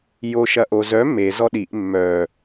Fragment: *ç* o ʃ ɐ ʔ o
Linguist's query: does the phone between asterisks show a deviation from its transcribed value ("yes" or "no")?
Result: yes